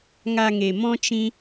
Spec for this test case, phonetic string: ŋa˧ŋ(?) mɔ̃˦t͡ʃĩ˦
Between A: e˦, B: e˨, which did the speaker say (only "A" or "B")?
B